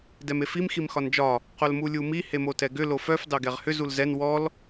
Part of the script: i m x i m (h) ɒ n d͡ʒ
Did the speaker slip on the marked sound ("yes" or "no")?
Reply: yes